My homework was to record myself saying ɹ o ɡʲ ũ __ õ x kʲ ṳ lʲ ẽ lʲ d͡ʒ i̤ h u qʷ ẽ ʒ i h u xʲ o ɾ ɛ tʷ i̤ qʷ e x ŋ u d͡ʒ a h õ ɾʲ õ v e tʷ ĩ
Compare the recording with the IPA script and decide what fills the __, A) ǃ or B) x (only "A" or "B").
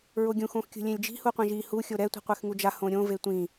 B